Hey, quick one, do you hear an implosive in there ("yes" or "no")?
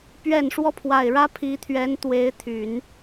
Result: no